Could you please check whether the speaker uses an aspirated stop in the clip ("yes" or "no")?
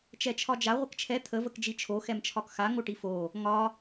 yes